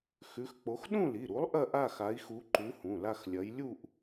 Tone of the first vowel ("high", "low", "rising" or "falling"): rising